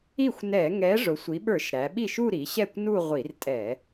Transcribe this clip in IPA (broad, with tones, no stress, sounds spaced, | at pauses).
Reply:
i˥˩ xʷ n ɛ˧˩˧ ŋ ɛ˨˥ ʐ ʊ˩˧ sʷ i˩˧ ɓ ə˞˧˩˧ ʃ ɾ æ˩˧ ɓ i˥˩ ʃ u˥˧ ɾ i˩˧ ɕ ɛ˥˩ kʷ n u˥˧ ʁʷ i˧˩˧ r tʼ ɛ˧˩˧